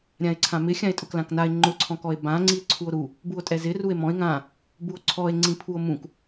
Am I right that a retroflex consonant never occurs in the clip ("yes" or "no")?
yes